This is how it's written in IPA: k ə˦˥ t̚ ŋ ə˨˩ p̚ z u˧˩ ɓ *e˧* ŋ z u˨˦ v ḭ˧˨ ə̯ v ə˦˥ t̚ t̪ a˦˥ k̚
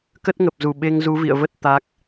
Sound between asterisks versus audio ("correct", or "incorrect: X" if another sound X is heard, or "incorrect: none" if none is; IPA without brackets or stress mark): correct